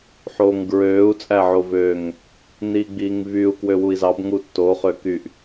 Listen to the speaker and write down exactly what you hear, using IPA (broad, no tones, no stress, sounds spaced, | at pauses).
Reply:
ħ oː ŋ ɡ ɹ øː u̯ t͡sʼ æ ʕ o v øː ŋ | n iː ɡ͡b iː ŋ v y u̯ k w ø w u i̯ z ɑ b ŋ u tː o χ ø k y ʔ